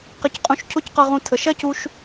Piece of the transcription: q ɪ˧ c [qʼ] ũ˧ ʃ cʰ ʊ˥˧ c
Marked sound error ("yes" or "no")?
no